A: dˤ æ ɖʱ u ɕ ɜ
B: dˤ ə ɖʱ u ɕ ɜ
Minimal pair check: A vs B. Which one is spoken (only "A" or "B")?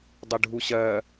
B